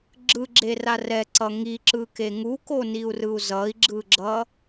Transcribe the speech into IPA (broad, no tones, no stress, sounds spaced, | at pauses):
ɡ͡ǁ ɯ ɡ͡ǁ e r a r ɛ ǀ ʌ ŋ i ǁ ɯ k e ŋ u k o n i u̯ r ɯ u̯ z ʌ i̯ ɡ͡ǁ ɯ ɡ͡ǁ ʌ